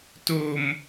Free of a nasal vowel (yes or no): yes